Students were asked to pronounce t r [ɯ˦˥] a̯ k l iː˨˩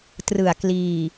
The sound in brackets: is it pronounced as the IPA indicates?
no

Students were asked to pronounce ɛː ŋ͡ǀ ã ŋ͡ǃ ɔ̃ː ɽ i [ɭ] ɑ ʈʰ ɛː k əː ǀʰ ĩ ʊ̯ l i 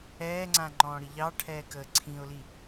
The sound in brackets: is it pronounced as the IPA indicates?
no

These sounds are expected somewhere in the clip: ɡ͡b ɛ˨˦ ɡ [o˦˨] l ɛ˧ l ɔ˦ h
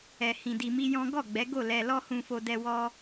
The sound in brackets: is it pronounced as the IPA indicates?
yes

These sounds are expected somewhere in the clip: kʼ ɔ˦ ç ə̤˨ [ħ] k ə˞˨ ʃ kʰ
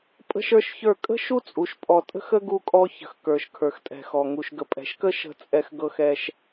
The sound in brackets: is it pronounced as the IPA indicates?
no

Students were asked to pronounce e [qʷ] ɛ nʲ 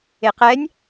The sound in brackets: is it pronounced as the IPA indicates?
no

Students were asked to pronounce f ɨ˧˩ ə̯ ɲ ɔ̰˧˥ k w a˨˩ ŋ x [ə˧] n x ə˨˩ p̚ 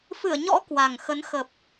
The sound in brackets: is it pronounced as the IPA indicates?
no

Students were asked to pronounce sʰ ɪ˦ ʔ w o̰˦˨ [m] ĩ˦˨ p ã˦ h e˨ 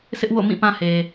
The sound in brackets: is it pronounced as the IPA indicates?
yes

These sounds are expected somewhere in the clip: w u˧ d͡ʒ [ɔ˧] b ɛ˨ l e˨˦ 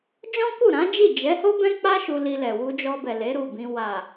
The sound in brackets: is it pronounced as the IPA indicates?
yes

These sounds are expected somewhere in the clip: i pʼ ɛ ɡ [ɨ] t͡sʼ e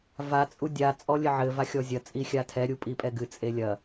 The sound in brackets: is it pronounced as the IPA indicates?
yes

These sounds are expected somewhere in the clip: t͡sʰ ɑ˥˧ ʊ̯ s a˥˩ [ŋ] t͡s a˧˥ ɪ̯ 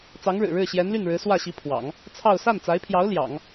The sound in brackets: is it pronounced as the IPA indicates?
no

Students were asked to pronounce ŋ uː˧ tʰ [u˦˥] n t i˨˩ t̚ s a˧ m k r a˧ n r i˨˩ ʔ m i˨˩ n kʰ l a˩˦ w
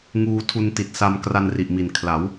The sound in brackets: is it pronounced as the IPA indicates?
no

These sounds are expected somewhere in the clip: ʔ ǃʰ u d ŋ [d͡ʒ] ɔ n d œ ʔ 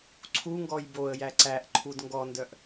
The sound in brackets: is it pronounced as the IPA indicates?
no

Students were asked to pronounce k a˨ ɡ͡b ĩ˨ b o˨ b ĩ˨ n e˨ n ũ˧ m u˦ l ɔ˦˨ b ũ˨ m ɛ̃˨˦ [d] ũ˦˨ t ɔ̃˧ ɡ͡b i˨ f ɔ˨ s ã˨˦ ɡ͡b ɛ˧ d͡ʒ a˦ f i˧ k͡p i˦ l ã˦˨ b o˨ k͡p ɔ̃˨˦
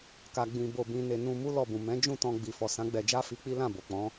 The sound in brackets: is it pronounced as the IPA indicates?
no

